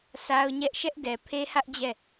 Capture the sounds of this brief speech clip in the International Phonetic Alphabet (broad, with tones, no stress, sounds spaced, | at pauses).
sʰ a˦ ʊ̯ ɲ ɛ˦ ʔ ʃ ɛ˦ ʔ d ɛ˨ pʰ e˦ h ä˦ ʔ d͡ʑ ɛ˦˨